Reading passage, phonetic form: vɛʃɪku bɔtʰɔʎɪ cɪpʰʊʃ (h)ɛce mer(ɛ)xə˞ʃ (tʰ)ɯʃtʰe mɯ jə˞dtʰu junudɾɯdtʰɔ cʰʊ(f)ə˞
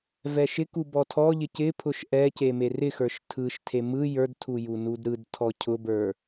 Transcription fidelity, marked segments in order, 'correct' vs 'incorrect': incorrect: ʔ, incorrect: ɪ, correct, incorrect: b

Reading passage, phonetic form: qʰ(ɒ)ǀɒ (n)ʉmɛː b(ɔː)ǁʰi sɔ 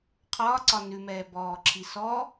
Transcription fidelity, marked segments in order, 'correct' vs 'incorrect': incorrect: ɒː, correct, correct

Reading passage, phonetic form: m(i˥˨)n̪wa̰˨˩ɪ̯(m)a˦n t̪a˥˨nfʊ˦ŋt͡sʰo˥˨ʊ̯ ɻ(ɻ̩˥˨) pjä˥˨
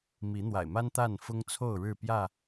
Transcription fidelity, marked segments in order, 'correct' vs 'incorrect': incorrect: i˨˦, correct, correct

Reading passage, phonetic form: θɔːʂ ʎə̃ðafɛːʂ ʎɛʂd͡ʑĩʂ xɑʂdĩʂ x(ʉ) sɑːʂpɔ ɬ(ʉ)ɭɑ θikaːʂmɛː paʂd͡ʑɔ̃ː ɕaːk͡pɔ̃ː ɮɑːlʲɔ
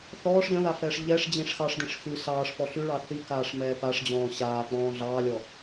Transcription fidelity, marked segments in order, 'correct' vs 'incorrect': correct, correct

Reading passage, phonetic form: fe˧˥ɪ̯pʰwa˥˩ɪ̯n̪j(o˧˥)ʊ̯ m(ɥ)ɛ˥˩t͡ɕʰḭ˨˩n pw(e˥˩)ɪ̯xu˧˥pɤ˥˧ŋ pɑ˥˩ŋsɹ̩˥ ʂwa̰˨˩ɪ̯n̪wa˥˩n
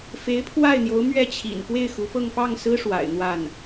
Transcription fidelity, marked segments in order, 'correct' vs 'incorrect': correct, correct, correct

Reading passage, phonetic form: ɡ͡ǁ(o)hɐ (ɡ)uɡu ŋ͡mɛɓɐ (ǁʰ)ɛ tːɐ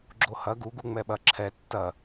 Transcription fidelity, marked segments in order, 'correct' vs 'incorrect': correct, correct, correct

